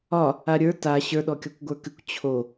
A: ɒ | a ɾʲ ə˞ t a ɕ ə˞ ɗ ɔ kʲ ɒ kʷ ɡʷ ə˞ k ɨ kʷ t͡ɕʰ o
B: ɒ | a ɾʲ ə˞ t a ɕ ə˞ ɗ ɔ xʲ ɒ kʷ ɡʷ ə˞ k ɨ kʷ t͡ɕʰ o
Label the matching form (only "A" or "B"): A